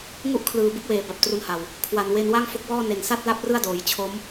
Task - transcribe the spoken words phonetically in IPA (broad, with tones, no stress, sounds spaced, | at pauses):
ŋ u˥˩ ʔ kʰ l ɯː˨˩ b ɯ˥˩ k̚ w eː˩˦ b a˨˩ p̚ t r u˧ n h a˨˩ w | kʰ w a˨˩ n w e˧ n w a˥˩ ŋ f o˦˥ k̚ w ɔː˥˩ n e˨˩ n s a˥˩ t̚ l a˥˩ p̚ r ɯ˥˩ a̯ d oː˩˦ j t͡ɕʰ o˦˥ m